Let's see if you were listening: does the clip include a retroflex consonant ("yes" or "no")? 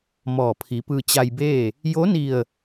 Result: no